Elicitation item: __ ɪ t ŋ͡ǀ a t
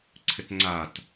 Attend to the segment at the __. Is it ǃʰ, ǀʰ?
ǀʰ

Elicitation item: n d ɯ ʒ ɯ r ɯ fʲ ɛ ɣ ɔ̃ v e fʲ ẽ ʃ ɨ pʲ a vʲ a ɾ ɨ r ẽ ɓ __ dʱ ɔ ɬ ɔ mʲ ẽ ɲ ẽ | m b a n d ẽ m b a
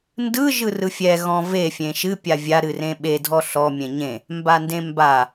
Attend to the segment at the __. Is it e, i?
e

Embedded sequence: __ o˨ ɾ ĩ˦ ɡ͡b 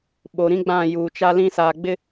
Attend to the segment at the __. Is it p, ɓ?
ɓ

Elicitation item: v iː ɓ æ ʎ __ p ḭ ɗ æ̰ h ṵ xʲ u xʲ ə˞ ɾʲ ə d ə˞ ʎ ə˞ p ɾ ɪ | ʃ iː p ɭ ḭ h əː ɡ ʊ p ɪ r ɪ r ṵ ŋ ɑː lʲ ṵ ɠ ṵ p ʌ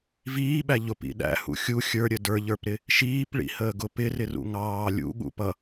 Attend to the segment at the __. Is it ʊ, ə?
ʊ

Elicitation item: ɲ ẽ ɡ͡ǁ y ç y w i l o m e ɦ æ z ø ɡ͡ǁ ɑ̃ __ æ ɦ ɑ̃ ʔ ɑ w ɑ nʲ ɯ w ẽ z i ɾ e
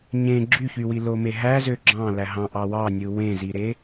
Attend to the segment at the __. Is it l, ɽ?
l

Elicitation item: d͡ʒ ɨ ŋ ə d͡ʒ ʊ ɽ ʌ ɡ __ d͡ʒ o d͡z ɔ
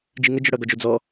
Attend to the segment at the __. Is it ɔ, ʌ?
ɔ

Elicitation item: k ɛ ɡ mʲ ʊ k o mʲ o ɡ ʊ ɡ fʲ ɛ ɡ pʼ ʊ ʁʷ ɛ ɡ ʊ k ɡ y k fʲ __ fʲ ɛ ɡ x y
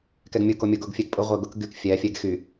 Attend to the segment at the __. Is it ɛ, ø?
ɛ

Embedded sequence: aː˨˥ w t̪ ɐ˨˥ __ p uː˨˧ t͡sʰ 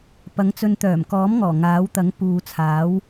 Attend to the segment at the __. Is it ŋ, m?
ŋ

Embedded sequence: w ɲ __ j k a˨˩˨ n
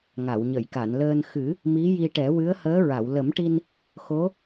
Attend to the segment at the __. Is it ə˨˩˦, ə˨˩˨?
ə˨˩˨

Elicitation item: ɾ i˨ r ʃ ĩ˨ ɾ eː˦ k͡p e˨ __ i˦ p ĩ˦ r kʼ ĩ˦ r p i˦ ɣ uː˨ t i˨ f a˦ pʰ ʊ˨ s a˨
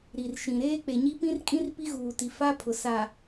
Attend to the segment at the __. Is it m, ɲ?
ɲ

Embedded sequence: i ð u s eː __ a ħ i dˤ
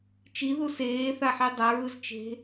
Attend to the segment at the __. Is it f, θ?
θ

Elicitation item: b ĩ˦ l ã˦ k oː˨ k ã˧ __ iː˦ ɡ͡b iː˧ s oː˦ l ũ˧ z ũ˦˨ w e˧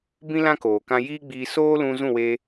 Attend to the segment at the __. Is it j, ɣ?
j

